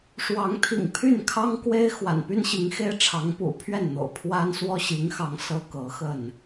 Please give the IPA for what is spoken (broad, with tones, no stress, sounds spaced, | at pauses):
ʂ w ɑ˨˦ ŋ t̪ʰ ḭ˨˩ ŋ pʰ y˥˨ n kʰ ɑ˦ ŋ k w e˦ ɪ̯ x w a̰˨˩ n p y˦ n ɕ i˨˦ ŋ x e˦ ɪ̯ ʈ͡ʂʰ ɑ˨˦ ŋ p ṵ˨˩ pʰ ɥ ɛ˥˨ n n̪ o̰˨˩ ʊ̯ pʰ w a˦ n s w ɔ˦ ɕ i˨˦ ŋ x ɑ˨˦ ŋ s ɤ˦ k ɤ˨˦ x ə˥˨ n